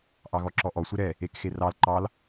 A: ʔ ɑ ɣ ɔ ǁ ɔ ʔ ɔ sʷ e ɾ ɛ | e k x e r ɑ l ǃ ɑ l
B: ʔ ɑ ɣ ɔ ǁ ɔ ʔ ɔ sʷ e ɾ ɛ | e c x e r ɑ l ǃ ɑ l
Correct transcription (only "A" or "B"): A